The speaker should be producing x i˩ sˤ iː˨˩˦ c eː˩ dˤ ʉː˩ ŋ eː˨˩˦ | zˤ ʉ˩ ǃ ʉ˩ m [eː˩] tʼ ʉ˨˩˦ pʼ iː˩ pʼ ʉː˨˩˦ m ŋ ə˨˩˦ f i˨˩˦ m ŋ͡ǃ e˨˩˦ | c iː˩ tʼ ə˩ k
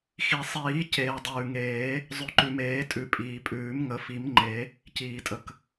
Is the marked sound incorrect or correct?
incorrect